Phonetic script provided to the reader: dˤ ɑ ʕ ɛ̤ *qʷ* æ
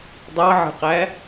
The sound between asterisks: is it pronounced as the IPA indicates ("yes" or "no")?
no